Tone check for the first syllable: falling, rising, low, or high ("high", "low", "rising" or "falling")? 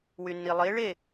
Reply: low